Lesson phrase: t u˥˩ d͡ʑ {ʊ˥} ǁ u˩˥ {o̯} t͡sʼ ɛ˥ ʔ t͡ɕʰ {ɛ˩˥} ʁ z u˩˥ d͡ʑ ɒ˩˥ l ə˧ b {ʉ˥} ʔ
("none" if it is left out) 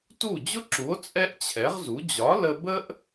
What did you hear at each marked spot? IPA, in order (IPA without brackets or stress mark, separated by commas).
ʊ˥, o̯, ɛ˩˥, ə˥